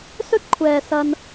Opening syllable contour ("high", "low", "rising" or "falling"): high